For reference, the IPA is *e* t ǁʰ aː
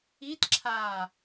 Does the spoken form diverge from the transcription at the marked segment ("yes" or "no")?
yes